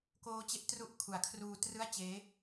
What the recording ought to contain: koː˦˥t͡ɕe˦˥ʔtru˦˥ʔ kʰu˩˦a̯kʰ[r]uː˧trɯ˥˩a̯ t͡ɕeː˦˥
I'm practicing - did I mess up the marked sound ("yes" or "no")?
no